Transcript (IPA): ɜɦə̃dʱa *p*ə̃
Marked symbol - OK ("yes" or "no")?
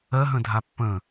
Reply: no